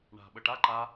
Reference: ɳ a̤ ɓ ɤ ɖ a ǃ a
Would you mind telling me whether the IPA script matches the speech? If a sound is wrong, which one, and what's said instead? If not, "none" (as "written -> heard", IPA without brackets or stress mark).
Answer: ɖ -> ʈ